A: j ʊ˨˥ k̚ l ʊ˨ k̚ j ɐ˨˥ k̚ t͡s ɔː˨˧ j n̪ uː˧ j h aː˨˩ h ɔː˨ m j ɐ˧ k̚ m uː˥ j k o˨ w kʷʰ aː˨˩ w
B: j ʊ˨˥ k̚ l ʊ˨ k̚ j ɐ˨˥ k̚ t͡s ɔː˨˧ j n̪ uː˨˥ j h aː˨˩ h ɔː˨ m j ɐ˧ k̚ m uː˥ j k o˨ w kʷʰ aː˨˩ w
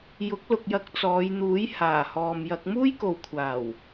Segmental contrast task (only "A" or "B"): B